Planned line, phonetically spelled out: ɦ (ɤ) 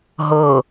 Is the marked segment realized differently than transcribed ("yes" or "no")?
no